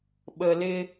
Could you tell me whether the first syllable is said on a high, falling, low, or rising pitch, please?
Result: low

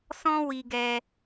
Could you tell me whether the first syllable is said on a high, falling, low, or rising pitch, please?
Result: high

